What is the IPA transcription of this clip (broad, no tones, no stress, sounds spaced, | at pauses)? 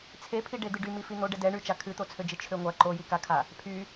t͡sʰ e pʰ i ɖ e d̪ ɨ ɖ y m i f i n̪ o ɖ ɛ d ɛ ɳ y t͡ʃ a kʰ ɨ t̪ o t͡sʰ ø d͡ʒ ɨ t͡ʃʰ ø ŋʷ a ǃ o j i k a kʰ a | pʰ y